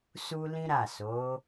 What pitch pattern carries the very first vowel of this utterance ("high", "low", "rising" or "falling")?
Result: high